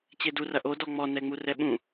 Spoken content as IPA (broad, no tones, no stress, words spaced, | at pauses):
t͡ɕedurɐ ʔodɔ ŋ͡mɔnɛŋ͡mu rɛɓũ